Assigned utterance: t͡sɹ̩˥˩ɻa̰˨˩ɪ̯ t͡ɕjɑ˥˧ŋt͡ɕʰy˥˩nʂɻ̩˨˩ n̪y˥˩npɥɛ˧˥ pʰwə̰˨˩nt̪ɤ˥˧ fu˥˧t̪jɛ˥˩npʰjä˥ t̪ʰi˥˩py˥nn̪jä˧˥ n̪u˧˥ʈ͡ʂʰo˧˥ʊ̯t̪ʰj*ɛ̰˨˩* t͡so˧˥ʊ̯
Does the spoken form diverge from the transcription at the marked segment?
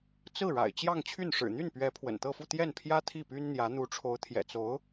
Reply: no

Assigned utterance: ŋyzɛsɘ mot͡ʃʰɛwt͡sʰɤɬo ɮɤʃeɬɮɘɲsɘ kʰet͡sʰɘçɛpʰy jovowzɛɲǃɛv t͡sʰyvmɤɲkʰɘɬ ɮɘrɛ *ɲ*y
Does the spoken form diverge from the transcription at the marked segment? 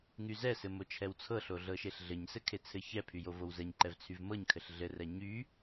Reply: no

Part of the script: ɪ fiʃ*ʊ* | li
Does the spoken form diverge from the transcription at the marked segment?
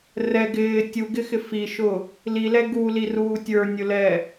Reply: no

